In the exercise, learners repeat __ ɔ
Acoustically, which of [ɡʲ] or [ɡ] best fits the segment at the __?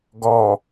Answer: ɡ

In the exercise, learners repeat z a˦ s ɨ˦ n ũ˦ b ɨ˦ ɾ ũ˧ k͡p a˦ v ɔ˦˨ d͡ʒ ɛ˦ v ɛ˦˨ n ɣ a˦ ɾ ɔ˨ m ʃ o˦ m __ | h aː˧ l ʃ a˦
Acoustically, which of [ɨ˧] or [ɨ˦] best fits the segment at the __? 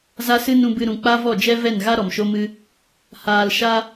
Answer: ɨ˦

